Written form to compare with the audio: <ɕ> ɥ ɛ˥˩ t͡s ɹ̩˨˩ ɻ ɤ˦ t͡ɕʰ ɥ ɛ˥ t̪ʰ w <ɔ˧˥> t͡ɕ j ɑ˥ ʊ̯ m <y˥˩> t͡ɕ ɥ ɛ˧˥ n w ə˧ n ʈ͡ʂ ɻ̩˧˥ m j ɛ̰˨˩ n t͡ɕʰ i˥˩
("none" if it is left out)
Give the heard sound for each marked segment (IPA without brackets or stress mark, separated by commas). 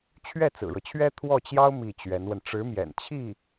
t͡ɕʰ, ɔ˥˩, i˥˩